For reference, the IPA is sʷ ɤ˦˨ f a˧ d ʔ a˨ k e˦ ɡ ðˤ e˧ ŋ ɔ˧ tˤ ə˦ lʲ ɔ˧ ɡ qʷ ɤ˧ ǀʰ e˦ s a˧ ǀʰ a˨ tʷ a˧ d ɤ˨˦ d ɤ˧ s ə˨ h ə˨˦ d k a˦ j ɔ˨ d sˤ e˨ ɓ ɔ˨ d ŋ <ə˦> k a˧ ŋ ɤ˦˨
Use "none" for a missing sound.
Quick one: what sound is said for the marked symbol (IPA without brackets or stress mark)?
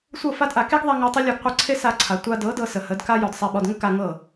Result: ə˦